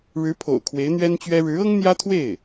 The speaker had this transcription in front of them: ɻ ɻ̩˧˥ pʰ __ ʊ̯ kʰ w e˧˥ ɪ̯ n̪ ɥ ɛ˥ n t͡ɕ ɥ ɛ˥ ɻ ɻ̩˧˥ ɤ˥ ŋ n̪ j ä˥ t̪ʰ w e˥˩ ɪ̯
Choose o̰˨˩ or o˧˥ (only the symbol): o̰˨˩